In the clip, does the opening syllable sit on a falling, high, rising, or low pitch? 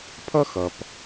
high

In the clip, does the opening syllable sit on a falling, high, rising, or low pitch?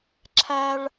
high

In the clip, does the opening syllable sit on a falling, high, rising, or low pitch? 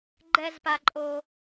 high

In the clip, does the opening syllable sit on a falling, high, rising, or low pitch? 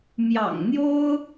low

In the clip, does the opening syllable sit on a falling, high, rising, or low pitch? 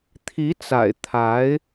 rising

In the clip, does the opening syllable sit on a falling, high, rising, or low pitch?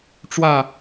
falling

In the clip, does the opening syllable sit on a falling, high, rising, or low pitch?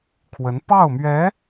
rising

